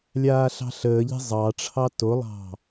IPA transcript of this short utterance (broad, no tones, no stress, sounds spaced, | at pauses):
lʲ aː ɬ ɑ̤ ɬ əː ʎ e̤ zˤ ɑ ʈ͡ʂʰ ɑ t o lˠ ɑ̤